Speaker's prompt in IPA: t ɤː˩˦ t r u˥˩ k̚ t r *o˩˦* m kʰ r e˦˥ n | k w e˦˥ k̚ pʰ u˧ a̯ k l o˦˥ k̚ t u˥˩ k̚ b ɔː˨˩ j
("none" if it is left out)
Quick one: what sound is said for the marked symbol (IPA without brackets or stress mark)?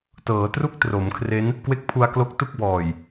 o˩˦